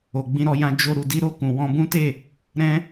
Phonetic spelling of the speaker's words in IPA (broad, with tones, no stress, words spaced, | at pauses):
o˨ɡ͡bĩ˧ɾɔ˧jã˧ d͡ʒo˧ ɾu˨di˧ɾo˧ kũ˨wɔ̃˧bũ˦te˦˨ | ɾɛ̃˦